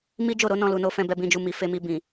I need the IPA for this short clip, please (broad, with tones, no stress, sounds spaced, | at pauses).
m i˦ d͡ʒ o˦˨ ɾ o˨˦ n ɔ̃˧ l u˨ n o˧ f ɛ̃˧ b ɛ˧ b ĩ˧ d͡ʒ u˧ m i˨ f e˧ m i˧ b ĩ˨